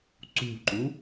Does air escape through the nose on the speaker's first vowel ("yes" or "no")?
no